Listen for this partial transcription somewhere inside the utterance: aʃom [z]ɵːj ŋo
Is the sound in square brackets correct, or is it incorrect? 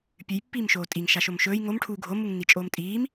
incorrect: ʃ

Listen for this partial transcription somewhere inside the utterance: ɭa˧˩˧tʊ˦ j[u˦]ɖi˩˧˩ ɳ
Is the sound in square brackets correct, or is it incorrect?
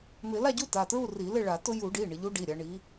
incorrect: u˧˩˧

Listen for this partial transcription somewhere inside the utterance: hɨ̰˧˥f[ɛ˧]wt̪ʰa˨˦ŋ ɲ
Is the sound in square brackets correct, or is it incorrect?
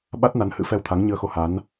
correct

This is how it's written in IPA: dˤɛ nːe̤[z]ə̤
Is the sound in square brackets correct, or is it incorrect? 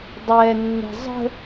incorrect: zˤ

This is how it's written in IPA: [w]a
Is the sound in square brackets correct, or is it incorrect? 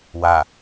correct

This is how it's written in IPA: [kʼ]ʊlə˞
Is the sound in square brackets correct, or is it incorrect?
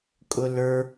correct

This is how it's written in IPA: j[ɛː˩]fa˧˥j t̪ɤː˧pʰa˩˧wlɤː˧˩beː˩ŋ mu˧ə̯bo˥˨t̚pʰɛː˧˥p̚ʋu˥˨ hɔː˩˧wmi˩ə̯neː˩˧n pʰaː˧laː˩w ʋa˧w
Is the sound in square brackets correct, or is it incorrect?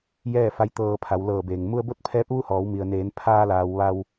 incorrect: ɛː˥˨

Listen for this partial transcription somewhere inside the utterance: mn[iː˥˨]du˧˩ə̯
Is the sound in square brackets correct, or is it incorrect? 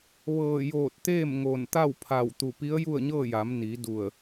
incorrect: iː˩˧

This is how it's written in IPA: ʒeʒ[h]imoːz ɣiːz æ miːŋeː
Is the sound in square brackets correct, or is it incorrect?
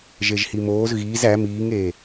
correct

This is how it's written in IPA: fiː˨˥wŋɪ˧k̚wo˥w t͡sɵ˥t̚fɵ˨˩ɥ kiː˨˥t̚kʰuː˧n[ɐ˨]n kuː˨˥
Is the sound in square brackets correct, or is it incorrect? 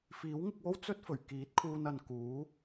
correct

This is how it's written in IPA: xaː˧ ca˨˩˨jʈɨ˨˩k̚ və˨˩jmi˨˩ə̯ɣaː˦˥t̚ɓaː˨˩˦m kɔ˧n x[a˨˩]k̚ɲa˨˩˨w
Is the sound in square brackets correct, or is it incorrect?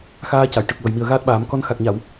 correct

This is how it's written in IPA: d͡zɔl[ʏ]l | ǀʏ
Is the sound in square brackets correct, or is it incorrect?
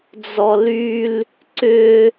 incorrect: y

